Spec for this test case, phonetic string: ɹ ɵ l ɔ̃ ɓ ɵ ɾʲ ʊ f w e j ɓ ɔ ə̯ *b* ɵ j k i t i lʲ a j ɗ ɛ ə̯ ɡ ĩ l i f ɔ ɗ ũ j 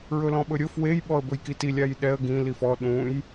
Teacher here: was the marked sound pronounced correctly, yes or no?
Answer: yes